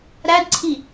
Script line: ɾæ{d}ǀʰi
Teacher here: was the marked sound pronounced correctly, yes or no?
yes